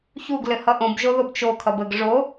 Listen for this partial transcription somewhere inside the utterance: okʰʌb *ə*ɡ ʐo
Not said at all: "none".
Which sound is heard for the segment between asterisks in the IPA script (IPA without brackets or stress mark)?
ə